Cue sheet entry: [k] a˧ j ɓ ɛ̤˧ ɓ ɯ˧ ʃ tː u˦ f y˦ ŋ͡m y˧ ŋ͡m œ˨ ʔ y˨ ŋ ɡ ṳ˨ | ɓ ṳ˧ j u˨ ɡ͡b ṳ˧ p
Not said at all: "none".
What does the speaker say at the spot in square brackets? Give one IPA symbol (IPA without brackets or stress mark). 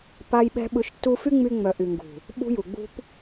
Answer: p